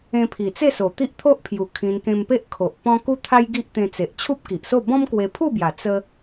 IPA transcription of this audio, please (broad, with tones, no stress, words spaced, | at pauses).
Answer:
ẽ˧pʰi˨˩t͡se˥˧so˨˩ t̪i˦ʔt̪ʰo˦ʔpʰju˨˩ kʰĩ˧nkẽ˧mpe˦ʔ kʰo˨ʔ pɔ̃˦ ku˦t̪ʰa˦j ɡi˦ʔt̪ẽ˧t͡se˨ʔ t͡ɕʰu˦p̚ki˨ʔso˥˧ bɔ̃˦mkwe˧pʰu˥˧bja˨˩ t͡sə˦